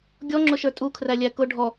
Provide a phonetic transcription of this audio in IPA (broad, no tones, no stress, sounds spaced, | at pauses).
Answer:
ɡʲ ɔ ŋ͡ǁ ʊ ʃ ə˞ tʼ u kʰ r æ lʲ æ k ʊ ɖʱ ɔ